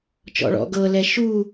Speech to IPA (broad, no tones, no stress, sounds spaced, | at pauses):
t͡ʃ ɔ̰ ɭ ɔ̰ ɡ ɤ l ɛ ʃ u